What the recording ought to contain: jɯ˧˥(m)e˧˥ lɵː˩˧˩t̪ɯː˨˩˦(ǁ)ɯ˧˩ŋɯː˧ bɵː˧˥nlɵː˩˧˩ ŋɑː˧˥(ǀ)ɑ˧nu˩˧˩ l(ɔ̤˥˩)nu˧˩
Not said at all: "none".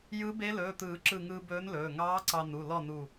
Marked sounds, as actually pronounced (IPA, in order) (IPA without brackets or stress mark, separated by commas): b, ǁ, ǀ, ɔ˥˩